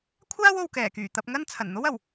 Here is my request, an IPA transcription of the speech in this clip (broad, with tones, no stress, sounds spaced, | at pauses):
kʷʰ aː˥ w o˨ w k ɛː˨˩ k yː˨˩ t̪ ɐ˧ p̚ ŋ ɐ˥ n t͡sʰ ɐ˨˩ n n̪ o˥ w ɐ˨˩ w